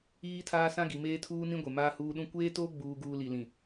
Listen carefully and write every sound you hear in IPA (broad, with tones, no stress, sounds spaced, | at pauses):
iː˦ tʰ aː˦ s ã˦ ɡ i˨ m eː˦ tʰ uː˦ n ĩ˦ ɡʷ e˨ m aː˦ h uː˦ ɗ ũ˦ kʷ eː˦ t oː˦ ɡ͡b uː˦ ɡ uː˦ l i˨ l ĩ˨